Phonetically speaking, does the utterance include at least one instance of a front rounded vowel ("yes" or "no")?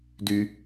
yes